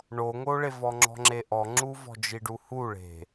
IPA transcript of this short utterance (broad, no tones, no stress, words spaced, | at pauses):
ɳoŋoɭevɔ ŋ͡ǁɔ̤ŋ͡ǁeʔɔŋ͡ǁu vɔ̤d͡ʒiɖuhu ɭe̤